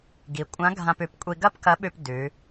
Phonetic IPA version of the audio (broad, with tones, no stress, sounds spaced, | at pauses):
ɡ i˩˧ kʷʼ ã˧˥ ɡʱ ã˧ p ʉ˩˧ p kʷʼ i˧ ɡ ɐ˥ p k ɐ˧˥ ɓ ʉ˧ p d ʉ˩˧